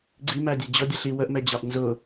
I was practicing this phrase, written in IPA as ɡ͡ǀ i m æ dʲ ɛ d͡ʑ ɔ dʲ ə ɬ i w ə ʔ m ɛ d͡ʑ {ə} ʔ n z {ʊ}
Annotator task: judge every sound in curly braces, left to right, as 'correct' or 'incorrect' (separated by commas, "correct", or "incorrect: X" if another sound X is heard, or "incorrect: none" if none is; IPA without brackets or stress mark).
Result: incorrect: ɑ, correct